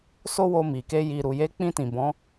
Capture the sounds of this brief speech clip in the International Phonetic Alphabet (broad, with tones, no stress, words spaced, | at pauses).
so˦wo˧mi˨ke˧ ji˨ ɾu˨je˨˦k͡pĩ˧ tĩ˨ bɔ̃˨˦